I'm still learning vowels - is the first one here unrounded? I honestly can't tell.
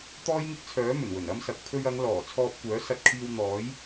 no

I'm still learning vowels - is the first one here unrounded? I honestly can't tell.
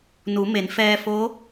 no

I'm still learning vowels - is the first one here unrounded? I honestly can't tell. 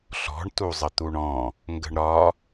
no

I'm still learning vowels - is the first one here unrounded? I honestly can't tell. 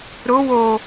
no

